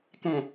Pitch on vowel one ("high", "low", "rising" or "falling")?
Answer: low